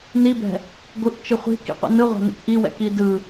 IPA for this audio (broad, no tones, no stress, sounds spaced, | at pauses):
n i b ɛ̤ | ɡʷ ɯ ʔ t͡ʃ ɯ χʷ i̤ k ḭ qʷ ḭ n ɯ ʁʷ a̤ n ḭ k ʔ i w ɛ̰ k i d ɯ